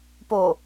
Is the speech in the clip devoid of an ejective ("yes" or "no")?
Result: yes